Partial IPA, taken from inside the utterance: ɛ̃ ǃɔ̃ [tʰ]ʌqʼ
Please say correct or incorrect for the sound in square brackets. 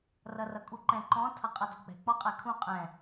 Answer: correct